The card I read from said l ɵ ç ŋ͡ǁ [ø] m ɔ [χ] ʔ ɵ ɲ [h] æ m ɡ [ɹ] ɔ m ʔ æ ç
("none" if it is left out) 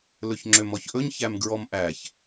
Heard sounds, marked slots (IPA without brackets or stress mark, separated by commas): ø, ç, ç, ɹ